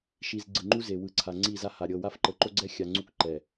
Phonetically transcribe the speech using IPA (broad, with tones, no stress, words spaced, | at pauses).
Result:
ʃi˨z ɡ͡ǀɯ˨ŋ͡ǃu˦ ze˨wɯ˨˦ǀʰa˨ ŋ͡ǀi˦˨za˦ ha˨ ɾʲɤ˨wa˦f ǃɤ˨ǃo˦ɡ͡ǀɛ˦ xʲa˨ŋ͡ǀu˦kǃɛ˨